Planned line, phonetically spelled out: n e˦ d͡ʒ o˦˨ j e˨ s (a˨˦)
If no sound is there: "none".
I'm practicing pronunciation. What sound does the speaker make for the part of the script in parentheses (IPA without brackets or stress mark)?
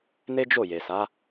a˨˦